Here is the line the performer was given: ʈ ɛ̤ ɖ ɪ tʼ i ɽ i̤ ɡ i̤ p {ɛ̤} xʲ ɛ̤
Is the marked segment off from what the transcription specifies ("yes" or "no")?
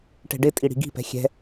no